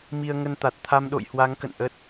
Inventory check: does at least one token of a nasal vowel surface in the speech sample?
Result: no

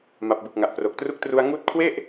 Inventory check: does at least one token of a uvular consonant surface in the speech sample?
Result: no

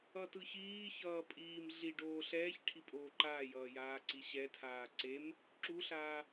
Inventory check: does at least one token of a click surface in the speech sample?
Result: yes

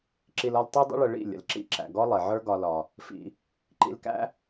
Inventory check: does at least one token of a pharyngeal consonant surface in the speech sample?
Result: yes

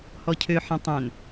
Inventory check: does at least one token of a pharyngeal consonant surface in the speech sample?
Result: yes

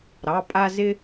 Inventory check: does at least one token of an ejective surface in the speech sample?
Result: yes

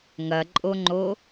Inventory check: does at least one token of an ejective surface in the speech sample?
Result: yes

